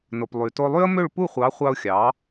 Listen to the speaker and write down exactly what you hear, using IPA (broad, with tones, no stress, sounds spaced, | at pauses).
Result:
n o˩ p lˠ y˩ t o˧ lˠ y˥ ə̯ m ø˥˩ ɭ p u˥˩ χʷ ɑ˩˥ χʷ ɑ˧ ʊ̯ xʲ ɑ˩˥